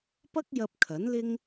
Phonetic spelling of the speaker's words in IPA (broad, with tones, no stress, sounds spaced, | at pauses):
p ɐ˥ k̚ j ɐ˧ p̚ kʰ ɐ˨˥ n l ɪ˥ ŋ